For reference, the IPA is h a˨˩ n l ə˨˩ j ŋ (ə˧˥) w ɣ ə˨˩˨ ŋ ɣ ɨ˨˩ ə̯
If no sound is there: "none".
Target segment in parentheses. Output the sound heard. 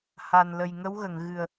ə˧˥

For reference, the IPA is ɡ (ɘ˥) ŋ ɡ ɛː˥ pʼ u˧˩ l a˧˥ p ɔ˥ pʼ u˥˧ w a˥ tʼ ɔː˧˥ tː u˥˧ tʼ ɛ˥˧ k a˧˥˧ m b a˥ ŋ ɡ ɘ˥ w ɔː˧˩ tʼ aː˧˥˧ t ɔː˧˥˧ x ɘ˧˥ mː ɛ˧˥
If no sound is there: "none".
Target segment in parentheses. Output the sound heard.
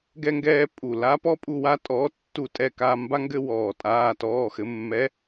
ɛ˥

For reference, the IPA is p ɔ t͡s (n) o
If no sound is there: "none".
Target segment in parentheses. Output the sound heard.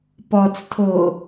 tʰ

